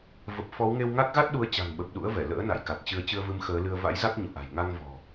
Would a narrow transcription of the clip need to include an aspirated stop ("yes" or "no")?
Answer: no